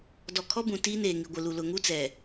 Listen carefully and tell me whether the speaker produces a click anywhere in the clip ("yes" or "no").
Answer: no